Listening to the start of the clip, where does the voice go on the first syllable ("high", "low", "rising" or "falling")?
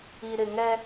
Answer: low